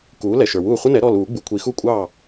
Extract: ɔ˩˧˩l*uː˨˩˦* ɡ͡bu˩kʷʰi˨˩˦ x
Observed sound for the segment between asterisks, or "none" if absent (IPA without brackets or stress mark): uː˨˩˦